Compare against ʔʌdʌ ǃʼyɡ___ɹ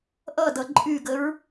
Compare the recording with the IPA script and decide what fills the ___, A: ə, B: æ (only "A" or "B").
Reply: A